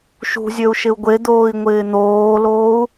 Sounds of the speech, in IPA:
ʃ ṳ zʲ ø u̯ ʃ ɪ u̯ ɡʷ e d̪ oː i̯ ŋʷ ɪː n̪ oː l oː u̯

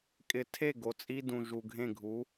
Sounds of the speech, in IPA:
kʼ ɪ˨˥ tʰ e˦˨ ɡ o˨ t͡sʼ i˦ d ũ˨ ʒ u˨ ɡʱ ẽ˦˨ ɡʱ u˨˥

